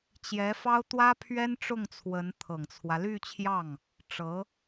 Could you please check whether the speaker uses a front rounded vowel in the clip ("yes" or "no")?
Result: yes